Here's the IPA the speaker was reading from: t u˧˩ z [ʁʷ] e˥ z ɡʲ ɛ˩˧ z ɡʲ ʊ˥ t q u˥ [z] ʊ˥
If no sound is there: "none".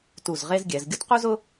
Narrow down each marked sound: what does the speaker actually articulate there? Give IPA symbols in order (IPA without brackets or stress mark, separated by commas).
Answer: ʁ, z